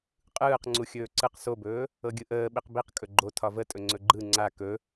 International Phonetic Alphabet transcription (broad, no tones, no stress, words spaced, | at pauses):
qʼɯːq ŋ͡ǀuxʲɵːǀɯq sobɵː | ɤɡʲɯʔəː ɓiqbiq kʼɵɡ͡ǃo tʰɒvətʼɵ ŋ͡ǀɵɡ͡ǃɯ ŋ͡ǀa kɵ